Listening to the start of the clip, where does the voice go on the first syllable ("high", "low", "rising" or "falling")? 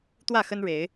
falling